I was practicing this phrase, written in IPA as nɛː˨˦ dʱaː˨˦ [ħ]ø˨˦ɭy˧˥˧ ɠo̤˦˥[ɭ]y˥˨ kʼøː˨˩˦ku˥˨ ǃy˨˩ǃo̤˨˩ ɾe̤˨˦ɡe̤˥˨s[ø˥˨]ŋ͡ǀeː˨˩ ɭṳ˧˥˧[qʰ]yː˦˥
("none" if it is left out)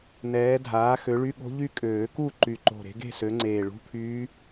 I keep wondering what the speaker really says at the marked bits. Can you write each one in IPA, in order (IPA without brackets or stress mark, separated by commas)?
x, ʎ, ø˨˦, pʰ